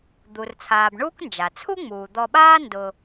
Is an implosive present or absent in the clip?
present